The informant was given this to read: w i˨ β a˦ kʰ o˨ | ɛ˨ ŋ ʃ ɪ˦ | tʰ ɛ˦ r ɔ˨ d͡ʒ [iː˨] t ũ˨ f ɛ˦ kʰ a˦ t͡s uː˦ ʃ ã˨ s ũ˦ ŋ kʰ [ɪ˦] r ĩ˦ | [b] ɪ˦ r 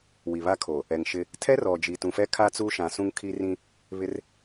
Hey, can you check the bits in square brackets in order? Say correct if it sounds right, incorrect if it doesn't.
incorrect, incorrect, incorrect

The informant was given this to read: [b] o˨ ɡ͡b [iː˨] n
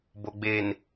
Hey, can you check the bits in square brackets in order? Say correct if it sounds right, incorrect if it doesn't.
correct, incorrect

